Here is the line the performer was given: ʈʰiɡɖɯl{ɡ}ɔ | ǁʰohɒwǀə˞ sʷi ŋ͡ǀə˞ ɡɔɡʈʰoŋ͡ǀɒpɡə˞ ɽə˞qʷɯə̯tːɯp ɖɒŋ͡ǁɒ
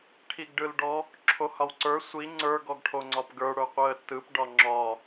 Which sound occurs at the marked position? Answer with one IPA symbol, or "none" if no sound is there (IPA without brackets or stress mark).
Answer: ɖ